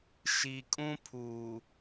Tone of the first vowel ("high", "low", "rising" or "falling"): low